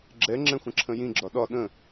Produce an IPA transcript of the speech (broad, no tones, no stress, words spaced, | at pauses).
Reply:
ɡ͡ǁɛŋ͡ǁɛ̃ xʷə̃ǁʰə̃jĩɡ͡ǁɒ ɗɒ ɗə̃